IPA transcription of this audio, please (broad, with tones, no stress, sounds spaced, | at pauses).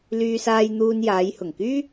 l yː˧ s aː˧ j n̪ uː˧ n j aː˨˧ j h ʊ˨˩ ŋ k yː˥